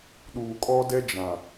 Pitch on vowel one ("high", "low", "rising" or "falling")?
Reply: low